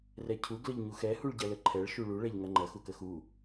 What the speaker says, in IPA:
r ɛ cʰ u ɡ l ə ʎ ɲ u x ɛ h u ɭ ɟ ɐ l ə ǃʰ ɛ ɭ ʃ u ɭ u ɭ ɛ ʎ ŋ ɐ ŋ͡ǃ ɐ x u k ə x u

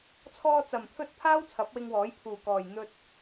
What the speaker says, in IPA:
t͡sʰ ɔː˧ t͡s ɐ˨ m t̪ʰ ɵ˧ t̚ pʰ aː˥ w t͡sʰ ɐ˨˥ p̚ w ɪ˧ ŋ w ɔː˨˥ j pʰ uː˨ k ɔː˨ j n̪ ɵ˧ t̚

